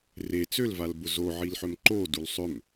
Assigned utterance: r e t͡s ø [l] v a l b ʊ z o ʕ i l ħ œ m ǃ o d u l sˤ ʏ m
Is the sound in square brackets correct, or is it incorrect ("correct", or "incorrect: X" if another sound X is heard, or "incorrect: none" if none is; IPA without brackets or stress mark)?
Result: correct